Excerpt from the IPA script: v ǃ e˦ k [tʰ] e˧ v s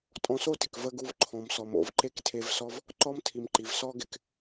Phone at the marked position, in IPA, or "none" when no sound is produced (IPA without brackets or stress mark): tʰ